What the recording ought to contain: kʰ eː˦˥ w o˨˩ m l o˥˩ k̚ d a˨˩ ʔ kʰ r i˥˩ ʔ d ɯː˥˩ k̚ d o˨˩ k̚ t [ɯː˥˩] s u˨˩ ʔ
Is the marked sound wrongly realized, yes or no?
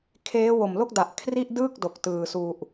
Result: yes